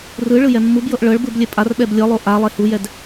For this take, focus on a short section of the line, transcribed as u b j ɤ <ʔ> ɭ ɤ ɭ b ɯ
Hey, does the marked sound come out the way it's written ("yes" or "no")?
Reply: yes